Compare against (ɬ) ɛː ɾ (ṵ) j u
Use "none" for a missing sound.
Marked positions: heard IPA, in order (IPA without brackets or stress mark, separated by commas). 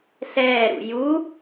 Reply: ɬ, ṵ